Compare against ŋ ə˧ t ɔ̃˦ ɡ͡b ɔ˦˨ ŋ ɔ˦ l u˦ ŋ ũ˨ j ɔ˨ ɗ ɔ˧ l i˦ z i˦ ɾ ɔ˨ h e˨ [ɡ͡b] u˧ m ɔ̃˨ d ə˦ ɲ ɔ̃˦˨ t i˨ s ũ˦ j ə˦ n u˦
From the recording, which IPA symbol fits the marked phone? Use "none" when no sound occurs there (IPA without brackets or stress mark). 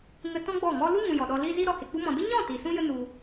k͡p